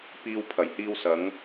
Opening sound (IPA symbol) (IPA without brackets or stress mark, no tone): p